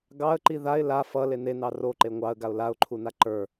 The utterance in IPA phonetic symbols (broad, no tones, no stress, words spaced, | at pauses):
ɡɑə̯ǃi ðaɪ̯ la fʌ lenenɑ roǃe ŋʷɑə̯ɡaʊ̯ laʊ̯ǃʰuna ǃə˞